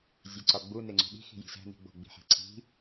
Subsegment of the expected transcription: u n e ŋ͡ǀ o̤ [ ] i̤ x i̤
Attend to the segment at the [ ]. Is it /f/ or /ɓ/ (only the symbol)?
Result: ɓ